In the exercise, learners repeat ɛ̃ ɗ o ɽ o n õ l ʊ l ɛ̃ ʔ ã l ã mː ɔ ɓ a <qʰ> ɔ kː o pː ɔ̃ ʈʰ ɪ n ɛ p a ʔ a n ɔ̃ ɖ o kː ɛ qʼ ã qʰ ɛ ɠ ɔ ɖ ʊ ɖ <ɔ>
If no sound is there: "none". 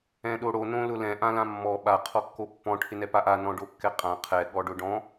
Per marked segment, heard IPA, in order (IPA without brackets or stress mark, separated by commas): qʰ, ɔ̃